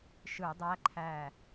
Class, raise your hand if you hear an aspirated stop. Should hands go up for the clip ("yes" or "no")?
yes